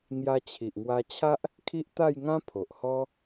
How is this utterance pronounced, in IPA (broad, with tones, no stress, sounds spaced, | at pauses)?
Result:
ŋ j a˧ t͡ɕʰ i˨ ʔ ŋ w a˧ t͡ɕʰ a˦ ʔ | kʰ i˦ ʔ t̪ a˥˧ j ŋ ã˦ pʰ o˨ ʔ h ɔ˦